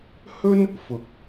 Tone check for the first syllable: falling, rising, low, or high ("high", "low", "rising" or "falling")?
high